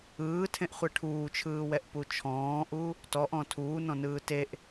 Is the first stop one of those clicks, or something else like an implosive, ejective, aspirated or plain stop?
aspirated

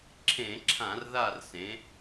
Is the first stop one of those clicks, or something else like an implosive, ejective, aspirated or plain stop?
click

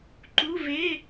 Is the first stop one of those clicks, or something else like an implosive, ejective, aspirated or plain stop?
click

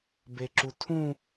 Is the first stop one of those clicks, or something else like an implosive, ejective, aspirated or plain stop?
plain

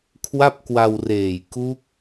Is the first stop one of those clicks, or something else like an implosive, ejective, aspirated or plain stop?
aspirated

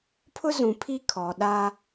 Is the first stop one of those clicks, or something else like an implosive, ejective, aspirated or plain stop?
aspirated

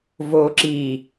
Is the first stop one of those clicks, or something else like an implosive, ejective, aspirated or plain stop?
click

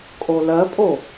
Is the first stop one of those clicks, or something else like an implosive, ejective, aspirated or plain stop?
ejective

